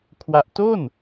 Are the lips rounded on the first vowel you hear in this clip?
no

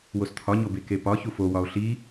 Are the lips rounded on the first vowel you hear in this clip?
yes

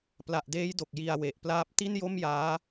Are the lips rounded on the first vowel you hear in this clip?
no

